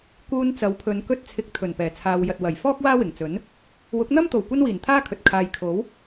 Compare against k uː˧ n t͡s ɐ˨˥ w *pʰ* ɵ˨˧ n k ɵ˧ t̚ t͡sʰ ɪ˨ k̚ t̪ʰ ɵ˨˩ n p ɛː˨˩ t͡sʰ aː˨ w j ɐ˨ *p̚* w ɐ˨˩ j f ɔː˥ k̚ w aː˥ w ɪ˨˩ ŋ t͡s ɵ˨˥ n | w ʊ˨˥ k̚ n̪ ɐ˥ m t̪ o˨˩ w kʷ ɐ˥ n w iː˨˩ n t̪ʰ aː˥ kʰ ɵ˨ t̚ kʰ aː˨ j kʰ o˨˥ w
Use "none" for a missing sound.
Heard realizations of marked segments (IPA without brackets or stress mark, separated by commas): pʰ, t̚